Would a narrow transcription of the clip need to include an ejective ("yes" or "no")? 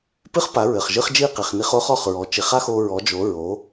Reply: no